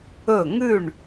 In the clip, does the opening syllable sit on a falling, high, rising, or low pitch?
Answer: falling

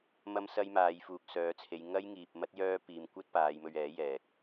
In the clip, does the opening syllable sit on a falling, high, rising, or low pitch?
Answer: high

